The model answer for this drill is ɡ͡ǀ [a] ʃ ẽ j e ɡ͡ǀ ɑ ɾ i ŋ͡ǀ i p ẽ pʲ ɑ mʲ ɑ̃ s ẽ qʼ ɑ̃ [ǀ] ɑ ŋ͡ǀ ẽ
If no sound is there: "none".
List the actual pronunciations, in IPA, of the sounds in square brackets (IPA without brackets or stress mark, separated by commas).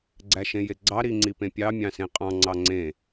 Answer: æ, ŋ͡ǀ